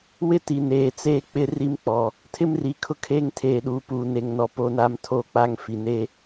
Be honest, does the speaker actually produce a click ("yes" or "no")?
no